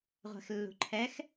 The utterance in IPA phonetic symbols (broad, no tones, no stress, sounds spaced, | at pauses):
ʁʷ ɛ̤ x lː ṳ ǃʰ ɛ x